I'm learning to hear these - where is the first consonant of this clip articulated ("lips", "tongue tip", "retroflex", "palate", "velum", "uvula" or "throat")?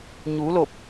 palate